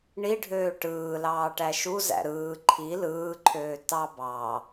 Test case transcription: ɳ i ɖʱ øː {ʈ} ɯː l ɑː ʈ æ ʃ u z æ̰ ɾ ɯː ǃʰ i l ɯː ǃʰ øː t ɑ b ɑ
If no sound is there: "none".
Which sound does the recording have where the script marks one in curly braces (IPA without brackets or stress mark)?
ʈ